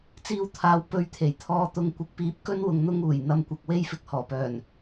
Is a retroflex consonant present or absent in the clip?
absent